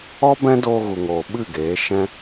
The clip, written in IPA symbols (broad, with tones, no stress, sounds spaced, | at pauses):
ɔ˦ b ɛ̃˦ d oː˧ ɣ u˨ ŋ oː˨ ɓ ɨ˦˨ ɡ eː˨˦ ʃ ɛ̃˦